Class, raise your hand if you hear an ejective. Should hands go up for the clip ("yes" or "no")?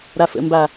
no